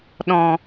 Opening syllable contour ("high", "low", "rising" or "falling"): low